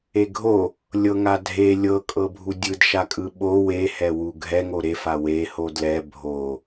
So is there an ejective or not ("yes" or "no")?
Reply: yes